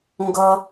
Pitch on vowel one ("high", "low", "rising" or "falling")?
low